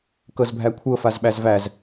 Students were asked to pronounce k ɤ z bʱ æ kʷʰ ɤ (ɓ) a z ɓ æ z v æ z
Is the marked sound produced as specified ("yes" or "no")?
no